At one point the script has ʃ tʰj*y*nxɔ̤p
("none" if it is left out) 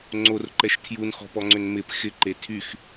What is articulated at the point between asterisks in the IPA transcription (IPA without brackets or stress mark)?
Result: u